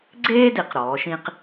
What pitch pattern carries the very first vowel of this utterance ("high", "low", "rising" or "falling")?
high